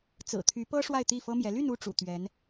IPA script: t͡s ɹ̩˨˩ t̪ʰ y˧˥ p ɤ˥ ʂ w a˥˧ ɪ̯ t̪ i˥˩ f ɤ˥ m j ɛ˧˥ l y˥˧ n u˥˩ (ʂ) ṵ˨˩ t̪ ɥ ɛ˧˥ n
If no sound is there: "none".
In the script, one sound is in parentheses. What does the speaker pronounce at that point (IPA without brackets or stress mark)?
ʈ͡ʂ